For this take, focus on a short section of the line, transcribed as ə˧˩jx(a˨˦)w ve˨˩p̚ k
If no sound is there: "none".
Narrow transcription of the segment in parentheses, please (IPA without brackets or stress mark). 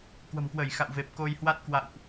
a̰˧˨